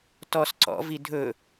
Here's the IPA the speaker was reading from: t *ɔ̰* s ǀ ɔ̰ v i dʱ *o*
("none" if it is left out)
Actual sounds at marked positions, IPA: ɔ, ɵ

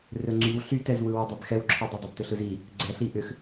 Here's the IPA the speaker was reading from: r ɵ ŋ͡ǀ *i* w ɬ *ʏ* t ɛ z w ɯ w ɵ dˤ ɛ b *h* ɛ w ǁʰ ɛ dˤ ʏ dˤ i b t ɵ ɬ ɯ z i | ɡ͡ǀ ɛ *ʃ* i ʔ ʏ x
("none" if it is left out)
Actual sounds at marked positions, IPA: y, y, x, ɬ

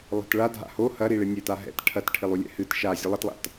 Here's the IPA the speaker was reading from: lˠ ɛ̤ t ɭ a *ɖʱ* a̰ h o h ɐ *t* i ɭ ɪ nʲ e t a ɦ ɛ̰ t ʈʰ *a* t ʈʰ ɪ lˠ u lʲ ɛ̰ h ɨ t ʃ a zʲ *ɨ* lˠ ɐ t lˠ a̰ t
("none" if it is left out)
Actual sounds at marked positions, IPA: dʱ, ɾ, ɐ, ɨ

